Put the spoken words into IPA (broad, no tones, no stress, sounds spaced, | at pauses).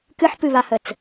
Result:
k ɨ ħ p ɨ β a h ə t͡s